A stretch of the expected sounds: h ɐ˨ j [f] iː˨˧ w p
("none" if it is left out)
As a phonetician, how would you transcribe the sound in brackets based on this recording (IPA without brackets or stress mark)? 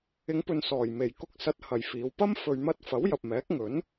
f